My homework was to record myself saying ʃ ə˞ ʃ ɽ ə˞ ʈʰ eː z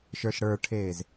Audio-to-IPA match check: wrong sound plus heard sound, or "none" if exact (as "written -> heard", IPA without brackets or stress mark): none